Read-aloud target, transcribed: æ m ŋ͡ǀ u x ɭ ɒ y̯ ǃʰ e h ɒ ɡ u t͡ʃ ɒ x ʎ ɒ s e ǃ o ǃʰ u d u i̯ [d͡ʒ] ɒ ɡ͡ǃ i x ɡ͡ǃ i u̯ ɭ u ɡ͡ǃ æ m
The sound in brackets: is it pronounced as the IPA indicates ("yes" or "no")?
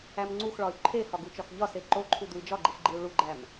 yes